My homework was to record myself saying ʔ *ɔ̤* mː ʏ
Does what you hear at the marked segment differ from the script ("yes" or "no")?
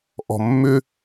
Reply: no